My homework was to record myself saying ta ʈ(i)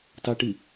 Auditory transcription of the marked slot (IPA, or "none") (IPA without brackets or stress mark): i